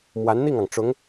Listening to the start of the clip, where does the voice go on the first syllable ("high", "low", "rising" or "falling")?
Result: rising